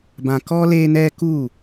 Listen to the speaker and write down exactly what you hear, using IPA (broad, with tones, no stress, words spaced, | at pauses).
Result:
bã˧kɔ˦ le˦nɛ˦ku˦˨